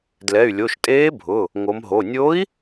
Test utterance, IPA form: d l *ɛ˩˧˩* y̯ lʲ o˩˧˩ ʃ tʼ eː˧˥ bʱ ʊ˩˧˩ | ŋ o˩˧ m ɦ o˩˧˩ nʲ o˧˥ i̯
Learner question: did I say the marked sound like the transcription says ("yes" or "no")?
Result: yes